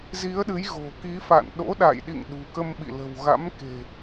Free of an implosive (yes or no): no